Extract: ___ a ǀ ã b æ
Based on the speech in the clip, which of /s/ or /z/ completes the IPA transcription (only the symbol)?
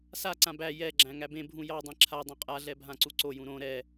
s